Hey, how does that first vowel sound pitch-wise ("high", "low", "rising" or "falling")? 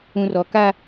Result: low